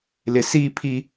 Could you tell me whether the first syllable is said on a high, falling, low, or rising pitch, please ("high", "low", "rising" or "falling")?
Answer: low